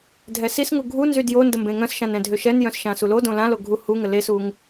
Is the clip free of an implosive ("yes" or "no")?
yes